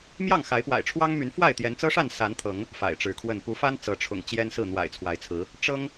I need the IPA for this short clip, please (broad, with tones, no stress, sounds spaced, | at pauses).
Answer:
m j ɑ˥˨ ŋ x a˨˦ ɪ̯ p w a̰˨˩ ɪ̯ ʈ͡ʂʰ w ɑ˦ ŋ m y˨˦ n f w a˥˨ ɪ̯ t̪ j ɛ˨˦ n t͡s ɤ˦ ʂ a˥˨ n s a˨˦ n t̪ʰ ɤ˨˦ ŋ | f a̰˨˩ ɪ̯ ʈ͡ʂ ɻ̩˨˦ kʰ w ə˥˨ n p u˨˦ f a˦ n t͡s ɤ˨˦ ʈ͡ʂʰ ʊ̰˨˩ ŋ t͡ɕ j ɛ˦ n s ɹ̩˥˨ n̪ w a̰˨˩ ɪ̯ t͡sʰ w a˨˦ ɪ̯ t͡sʰ ɹ̩˨˦ | ʈ͡ʂ ɤ˦ ŋ